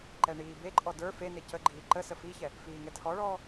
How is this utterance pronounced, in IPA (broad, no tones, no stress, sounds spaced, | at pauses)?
ǃ ɛ ɳ iː b e ǃʼ ɔ d ə˞ f e n e c ə ɡ͡ǃ iː ǃ ə s ə f i ç ɛ | f iː ŋ ɛ tʰ ɔ ɭ ɔː